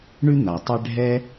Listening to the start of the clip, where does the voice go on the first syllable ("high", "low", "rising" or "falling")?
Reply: high